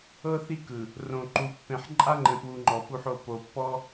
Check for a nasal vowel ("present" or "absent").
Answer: present